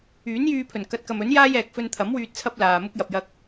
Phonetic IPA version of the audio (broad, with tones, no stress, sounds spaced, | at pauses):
yː˨˥ n j yː˧ pʰ ɵ˨˩ n k ɐ˨˥ t̚ k ɐ˨ m ɵ˨˥ n j aː˥ j ɛː˨ k̚ f ɵ˧ n t̪ʰ ɐ˨˥ m w yː˧ t̚ t͡sʰ ɐ˥ p̚ l aː˨ m ʊ˥ k̚ j ɐ˧ p̚ j ɐ˥ k̚